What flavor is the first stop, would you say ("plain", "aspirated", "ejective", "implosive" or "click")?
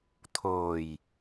aspirated